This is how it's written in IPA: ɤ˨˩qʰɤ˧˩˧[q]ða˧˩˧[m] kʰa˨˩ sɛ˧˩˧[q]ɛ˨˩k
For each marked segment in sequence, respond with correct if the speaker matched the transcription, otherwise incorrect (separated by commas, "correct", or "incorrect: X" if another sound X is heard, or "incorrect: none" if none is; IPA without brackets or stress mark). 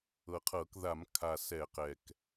incorrect: k, correct, correct